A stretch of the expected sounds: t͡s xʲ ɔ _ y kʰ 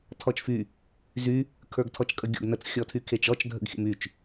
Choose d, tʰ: tʰ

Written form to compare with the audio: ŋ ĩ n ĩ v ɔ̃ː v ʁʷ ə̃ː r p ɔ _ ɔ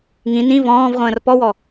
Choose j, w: w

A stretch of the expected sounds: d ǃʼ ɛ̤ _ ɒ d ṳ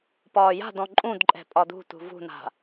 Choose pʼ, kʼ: pʼ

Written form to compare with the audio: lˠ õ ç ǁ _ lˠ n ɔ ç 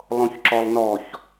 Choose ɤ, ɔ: ɔ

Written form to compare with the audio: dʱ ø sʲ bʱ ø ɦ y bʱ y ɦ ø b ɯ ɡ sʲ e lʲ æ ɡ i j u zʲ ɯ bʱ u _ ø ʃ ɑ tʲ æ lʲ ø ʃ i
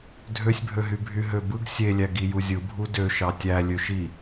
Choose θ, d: d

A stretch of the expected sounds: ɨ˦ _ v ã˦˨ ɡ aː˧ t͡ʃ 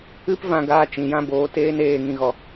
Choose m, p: p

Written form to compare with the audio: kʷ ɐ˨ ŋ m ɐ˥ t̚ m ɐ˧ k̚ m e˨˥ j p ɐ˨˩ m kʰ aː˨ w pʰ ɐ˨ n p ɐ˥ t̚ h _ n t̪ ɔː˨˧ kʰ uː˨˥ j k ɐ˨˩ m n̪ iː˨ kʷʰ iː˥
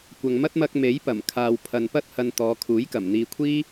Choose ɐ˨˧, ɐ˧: ɐ˧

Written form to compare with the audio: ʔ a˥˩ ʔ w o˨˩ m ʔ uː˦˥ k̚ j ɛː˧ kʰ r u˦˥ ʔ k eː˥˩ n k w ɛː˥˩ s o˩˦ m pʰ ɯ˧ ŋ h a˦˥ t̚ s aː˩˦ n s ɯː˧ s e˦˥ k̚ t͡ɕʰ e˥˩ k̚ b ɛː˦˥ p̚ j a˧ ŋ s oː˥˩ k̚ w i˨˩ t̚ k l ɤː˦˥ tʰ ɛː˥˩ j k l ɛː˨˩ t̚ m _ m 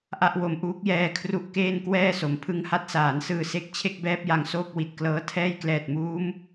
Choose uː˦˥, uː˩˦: uː˦˥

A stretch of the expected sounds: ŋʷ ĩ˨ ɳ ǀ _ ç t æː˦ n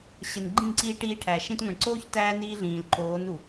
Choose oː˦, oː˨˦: oː˦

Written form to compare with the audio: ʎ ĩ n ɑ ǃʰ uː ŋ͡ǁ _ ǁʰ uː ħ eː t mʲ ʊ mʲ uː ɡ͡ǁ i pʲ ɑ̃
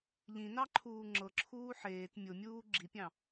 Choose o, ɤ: ɤ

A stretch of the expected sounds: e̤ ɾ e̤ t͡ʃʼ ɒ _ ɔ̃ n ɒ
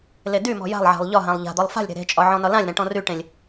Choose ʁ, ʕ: ʕ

